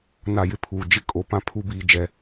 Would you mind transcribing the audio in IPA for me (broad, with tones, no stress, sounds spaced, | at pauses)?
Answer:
n a˦˨ j ɪ˦ pʰ uː˨ d͡ʒ ɪ˦ kʼ o˨ p ã˦ pʰ u˦ b iː˨ d͡ʒ ɛ˨